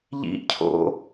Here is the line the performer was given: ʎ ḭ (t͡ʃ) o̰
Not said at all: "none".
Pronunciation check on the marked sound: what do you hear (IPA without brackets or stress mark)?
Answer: cʰ